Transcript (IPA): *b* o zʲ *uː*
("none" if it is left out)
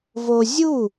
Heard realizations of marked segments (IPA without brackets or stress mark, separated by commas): v, u